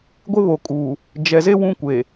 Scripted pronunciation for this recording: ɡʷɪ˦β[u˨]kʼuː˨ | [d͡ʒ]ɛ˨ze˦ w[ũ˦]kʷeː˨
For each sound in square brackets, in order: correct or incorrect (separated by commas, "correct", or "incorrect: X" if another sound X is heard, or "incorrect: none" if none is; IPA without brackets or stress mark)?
incorrect: o˨, correct, correct